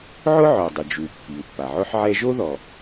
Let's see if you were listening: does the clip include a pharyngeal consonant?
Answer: yes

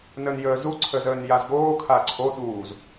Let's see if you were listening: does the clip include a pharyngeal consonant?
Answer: no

